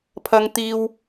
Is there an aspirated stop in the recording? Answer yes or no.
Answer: yes